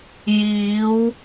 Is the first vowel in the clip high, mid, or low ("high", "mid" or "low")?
high